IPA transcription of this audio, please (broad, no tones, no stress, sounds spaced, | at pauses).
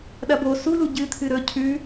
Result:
ɗ ɐ b o s u l u ɟ ɨ t̪ʰ ɨ ɾ ɵ cʰ ʉ